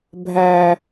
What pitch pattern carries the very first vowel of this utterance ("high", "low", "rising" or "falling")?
low